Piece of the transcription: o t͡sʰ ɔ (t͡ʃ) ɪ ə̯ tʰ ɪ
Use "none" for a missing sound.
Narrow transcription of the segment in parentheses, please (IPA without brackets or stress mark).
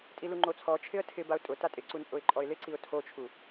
t͡ʃʰ